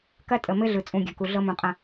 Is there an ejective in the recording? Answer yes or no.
yes